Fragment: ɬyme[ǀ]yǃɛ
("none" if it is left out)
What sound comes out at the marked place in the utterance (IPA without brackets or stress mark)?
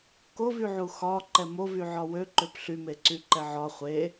ǀ